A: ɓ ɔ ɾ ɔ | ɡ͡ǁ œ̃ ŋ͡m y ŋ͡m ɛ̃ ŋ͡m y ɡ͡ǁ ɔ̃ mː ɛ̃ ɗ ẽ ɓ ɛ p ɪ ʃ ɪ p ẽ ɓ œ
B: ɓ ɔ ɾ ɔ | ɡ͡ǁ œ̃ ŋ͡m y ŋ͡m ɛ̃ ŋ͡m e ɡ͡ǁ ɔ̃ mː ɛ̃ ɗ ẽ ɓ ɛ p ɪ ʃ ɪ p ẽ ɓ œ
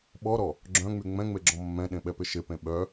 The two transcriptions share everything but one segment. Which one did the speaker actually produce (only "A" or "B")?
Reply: B